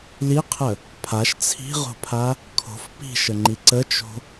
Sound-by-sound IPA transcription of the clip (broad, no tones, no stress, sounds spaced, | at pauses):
l i qʰ ə | pʰ a ʃ t͡sʰ i̤ ʁ o̤ pʰ a | kʰ o̤ f p i̤ ʃ ə ŋ͡ǃ i ǀ ə t͡ʃ o̤